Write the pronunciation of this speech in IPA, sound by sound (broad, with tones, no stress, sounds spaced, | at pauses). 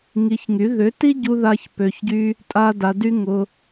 ŋ i˧ ç ŋ y˨˦ ð ʏ˨˦ t i˦ ɟ u˧ ð a˧ ç p ø˧ ç ɟ y˦ | tʼ a˦ d a˧ d y˦ ŋ ʊ˧